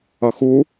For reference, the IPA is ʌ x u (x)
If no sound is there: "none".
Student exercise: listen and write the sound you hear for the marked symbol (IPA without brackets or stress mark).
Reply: none